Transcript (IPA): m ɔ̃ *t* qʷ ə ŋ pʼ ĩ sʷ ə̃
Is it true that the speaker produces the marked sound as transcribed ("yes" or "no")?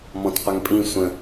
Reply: yes